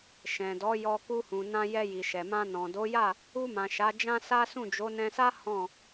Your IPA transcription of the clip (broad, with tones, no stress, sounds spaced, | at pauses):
ʃ ɛ̃˨ d ɔ˨˦ j ɔ˧ k u˧ h ũ˨ n ã˧ j ɛ˧ j i˨ ʃ ɛ˨ m ã˧ n ɔ̃˨ d o˨˦ j a˦˨ | u˧ m ã˨ ʃ a˨˦ d͡ʒ ã˦ s a˦ s ũ˦˨ d͡ʒ o˨˦ n ɛ̃˧ s a˦ h ɔ̃˦˨